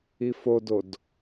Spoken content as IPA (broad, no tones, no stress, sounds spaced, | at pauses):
i f o d o d